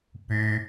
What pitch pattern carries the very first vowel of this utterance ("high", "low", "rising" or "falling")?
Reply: high